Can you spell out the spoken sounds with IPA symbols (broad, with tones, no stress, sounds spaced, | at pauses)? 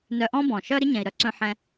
n œ˧ ʔ ɔ̃˦ b ɔ̃˨ ʃ œ˦ ɾ ɪ˦ ɲ ɛ̃˨ i̯ ɾ œ˧ ǀ œ̃˧ ħ ɛ̃˧